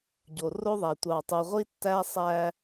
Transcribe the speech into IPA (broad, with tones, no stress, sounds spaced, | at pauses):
ɟ o˨ r o˦ ðˤ æ˨ tʷ ɑ˨ tˤ u˨ ʁʷ i˦ tː æ˦ sˤ æ˦